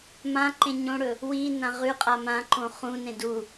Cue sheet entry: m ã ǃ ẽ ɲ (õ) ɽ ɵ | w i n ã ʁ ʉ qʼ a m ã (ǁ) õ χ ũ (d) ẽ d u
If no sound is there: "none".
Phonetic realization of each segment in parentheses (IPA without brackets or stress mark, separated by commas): õ, ǃ, n